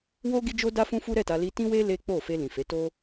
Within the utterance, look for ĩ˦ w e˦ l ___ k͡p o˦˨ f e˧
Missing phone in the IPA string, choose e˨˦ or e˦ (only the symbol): e˦